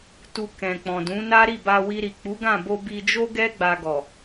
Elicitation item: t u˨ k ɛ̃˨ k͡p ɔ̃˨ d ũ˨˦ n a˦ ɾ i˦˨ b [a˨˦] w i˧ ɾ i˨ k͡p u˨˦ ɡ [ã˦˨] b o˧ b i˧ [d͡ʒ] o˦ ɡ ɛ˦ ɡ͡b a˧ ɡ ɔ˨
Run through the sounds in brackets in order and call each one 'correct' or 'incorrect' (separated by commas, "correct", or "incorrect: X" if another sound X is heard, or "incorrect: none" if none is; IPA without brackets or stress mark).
incorrect: a˧, correct, correct